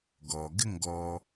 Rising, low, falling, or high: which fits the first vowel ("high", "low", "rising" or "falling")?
low